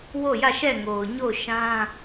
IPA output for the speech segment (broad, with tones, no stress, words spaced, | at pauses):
wo˦˨jä˦˨ʃɛ˦˨ŋo˨ʊ̯ ɲo˦˨ʊ̯ʃã˦